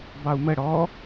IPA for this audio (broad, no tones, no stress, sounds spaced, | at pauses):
b ɑ u̯ m ə ɽ ɔ